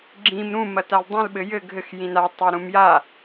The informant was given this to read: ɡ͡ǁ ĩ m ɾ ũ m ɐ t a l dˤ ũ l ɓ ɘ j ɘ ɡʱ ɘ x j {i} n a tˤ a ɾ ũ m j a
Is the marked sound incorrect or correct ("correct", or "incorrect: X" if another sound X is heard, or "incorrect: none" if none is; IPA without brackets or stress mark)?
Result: incorrect: ĩ